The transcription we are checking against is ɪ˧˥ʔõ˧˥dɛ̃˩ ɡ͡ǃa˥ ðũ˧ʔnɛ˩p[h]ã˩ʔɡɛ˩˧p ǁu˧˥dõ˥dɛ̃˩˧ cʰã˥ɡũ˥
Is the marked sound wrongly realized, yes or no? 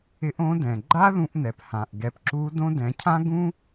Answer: no